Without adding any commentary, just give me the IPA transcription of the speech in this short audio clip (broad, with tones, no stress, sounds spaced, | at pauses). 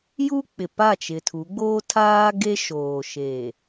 j u˦ k͡p ɪ˨ p a˦˨ t͡ʃ ɪ˨ tʰ u˨˦ ɡ͡b oː˦ tʰ aː˦ ɡ e˦ ʃ oː˨ ʃ e˨